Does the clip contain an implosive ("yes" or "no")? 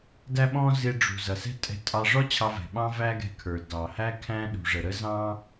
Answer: yes